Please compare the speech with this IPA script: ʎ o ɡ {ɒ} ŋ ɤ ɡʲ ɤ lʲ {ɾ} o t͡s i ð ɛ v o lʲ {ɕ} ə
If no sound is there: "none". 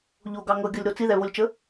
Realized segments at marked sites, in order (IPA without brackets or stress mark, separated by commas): ɑ, ɾ, t͡ʃ